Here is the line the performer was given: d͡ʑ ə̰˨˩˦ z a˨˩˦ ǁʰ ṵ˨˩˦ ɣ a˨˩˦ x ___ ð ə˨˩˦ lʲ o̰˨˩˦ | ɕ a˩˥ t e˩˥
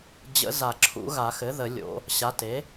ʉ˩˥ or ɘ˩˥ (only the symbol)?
ɘ˩˥